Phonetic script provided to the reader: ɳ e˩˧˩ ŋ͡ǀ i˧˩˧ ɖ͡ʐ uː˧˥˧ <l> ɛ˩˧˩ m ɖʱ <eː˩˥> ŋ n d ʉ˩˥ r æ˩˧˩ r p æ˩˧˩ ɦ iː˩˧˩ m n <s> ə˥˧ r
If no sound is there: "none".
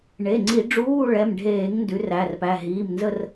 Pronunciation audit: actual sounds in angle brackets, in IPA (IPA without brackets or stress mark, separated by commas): ɭ, eː˧˩˧, z